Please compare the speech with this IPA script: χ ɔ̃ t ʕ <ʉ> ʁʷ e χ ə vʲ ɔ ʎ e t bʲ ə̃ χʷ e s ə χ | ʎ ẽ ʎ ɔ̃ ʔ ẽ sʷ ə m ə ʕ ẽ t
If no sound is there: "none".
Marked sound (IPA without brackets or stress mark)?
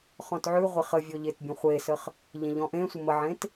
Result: ʉ